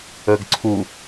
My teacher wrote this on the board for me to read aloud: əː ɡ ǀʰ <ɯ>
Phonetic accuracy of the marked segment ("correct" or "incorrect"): incorrect